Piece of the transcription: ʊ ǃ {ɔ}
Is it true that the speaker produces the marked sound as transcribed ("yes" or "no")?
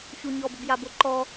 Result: yes